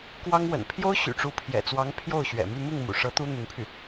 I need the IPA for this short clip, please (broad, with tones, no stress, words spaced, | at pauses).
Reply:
kwɑ˥ŋ wə̰˨˩npʰjo˥ʊ̯ ɕy̰˨˩ʈ͡ʂu˧˥pʰjɛ̰˨˩t͡swɑ˧˥ŋ pʰjo˥˩ʊ̯ɕɥɛ̰˨˩my˥˧ mi˥˩ŋmṵ˨˩ʂɤ˧˥ t̪u˥ n̪y˧˥npʰy˥˩